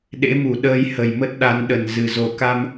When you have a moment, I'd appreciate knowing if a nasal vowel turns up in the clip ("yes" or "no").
no